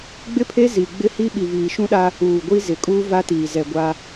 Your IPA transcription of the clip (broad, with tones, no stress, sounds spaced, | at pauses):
ɡ͡b ɪ˦ pʰ e˦ z i˨ ɡ͡b ɪ˦ h i˦ ɓ i˨ v iː˨ ʃ ũ˦ ɗ a˦ | uː˨ ɡʷ i˦ z ɪ˨ kʼ uː˦ v a˦ t iː˨ z ɛ˨ ɡʷ a˦